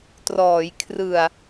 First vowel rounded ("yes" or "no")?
yes